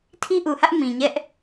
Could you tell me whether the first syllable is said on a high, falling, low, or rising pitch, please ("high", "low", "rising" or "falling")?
high